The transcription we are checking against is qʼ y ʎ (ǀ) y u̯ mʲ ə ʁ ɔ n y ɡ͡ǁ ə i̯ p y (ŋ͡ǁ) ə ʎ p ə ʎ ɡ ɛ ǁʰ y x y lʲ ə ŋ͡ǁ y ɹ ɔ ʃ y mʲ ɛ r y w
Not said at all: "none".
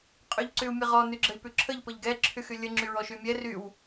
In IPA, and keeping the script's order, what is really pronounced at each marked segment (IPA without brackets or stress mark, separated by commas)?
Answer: ǀ, ǁʰ